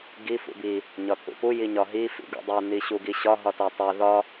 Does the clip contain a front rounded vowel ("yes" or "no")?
no